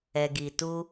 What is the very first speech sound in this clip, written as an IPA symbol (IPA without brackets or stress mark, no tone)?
ɛ